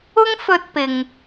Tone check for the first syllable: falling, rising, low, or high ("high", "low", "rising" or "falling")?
high